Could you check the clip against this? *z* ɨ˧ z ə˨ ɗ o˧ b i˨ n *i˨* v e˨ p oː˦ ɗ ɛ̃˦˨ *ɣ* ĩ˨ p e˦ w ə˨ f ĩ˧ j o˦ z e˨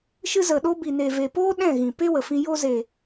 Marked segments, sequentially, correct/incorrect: incorrect: ʃ, incorrect: e˨, correct

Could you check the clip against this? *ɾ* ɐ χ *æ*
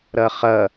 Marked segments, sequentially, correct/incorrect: correct, incorrect: ɐ

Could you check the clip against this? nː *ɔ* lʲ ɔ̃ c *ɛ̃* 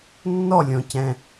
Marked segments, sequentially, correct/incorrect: correct, correct

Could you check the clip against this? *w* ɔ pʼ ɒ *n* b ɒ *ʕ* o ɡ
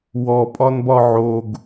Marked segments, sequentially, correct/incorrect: correct, correct, correct

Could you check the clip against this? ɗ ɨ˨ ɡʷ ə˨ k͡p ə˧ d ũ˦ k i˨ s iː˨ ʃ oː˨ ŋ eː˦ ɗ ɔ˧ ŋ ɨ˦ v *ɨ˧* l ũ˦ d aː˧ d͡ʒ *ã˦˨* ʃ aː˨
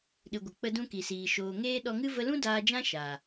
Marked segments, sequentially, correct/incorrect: incorrect: ə˧, incorrect: ã˦

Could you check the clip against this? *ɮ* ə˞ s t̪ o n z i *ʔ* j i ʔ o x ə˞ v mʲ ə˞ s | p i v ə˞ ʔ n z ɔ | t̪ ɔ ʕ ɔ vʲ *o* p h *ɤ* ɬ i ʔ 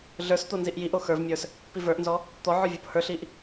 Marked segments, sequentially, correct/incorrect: correct, correct, correct, incorrect: ə˞

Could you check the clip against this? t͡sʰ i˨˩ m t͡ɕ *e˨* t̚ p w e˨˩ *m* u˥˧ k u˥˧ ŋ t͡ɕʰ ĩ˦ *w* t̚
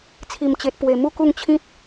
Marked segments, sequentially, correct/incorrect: correct, correct, incorrect: none

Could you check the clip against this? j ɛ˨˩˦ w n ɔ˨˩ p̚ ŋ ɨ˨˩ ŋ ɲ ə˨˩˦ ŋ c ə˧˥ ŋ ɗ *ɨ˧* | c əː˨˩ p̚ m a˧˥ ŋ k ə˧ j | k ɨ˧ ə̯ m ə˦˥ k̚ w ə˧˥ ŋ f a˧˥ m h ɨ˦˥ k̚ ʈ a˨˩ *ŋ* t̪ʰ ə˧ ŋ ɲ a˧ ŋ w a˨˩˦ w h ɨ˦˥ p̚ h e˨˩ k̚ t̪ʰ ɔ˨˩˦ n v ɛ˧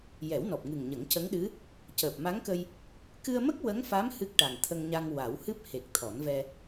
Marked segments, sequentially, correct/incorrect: incorrect: ɨ˧˥, correct

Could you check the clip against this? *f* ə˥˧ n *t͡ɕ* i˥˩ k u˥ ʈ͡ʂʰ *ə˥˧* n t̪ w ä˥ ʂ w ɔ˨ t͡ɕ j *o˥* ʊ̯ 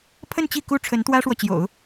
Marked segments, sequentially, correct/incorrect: incorrect: pʰ, correct, incorrect: ə˧˥, incorrect: o̰˨˩˦

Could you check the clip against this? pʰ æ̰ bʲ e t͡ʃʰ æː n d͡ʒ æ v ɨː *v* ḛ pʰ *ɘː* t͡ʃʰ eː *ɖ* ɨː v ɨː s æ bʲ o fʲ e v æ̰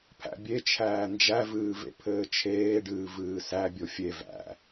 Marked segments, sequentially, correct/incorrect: correct, correct, correct

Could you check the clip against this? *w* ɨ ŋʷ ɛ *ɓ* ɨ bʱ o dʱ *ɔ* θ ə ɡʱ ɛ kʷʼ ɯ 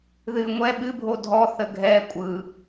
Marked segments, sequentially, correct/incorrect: incorrect: ð, correct, correct

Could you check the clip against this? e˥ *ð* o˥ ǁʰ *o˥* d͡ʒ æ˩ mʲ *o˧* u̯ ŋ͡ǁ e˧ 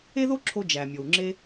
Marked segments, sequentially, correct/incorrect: correct, incorrect: o˧, incorrect: o˩

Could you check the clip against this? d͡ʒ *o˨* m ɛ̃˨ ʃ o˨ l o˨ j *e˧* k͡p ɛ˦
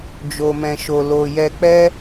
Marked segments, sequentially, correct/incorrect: correct, incorrect: ɛ˧

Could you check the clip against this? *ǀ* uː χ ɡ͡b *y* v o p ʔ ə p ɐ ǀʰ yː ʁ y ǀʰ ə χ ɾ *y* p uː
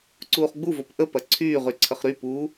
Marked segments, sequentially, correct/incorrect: correct, incorrect: u, correct

